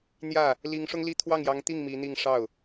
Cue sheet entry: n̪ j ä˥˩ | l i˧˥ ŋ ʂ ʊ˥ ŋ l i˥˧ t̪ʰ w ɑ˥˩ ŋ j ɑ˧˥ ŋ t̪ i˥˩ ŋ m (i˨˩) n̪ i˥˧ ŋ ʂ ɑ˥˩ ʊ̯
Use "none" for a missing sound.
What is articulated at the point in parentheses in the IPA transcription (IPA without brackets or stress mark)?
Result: i˧˥